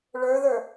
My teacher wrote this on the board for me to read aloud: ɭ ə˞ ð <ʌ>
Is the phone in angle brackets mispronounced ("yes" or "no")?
yes